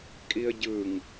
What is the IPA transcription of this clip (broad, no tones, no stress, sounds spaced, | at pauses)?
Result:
kʼ i ə̯ ɟ ɯ ŋ